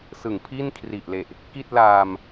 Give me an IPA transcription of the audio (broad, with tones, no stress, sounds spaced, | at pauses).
s ɯ˩˦ ŋ pʰ i˥˩ n kʰ r i˨˩ ʔ l e˨˩ ʔ | k i˥˩ t̚ l aː˧ m